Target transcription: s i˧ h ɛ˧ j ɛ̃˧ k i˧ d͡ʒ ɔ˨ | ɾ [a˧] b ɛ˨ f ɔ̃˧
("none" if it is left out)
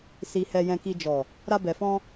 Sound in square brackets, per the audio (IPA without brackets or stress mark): a˧